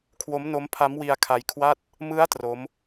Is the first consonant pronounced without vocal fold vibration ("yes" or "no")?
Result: yes